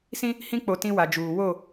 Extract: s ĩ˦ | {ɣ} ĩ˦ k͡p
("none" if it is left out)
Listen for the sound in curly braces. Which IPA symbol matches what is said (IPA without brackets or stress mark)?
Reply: h